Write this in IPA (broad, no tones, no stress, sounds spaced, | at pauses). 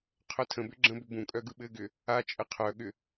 qʰ œ tʰ ə̃ b ʏ ɡ͡ǁ ə̃ b ʏ b ũ kʼ œ ɡ ɯ ɓ ɘ ɡ ʏ | a t͡ʃʼ ə qʰ œ ɠ ʏ